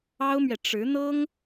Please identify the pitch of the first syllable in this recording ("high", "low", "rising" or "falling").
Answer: high